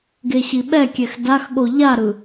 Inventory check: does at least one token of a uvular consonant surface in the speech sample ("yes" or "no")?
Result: no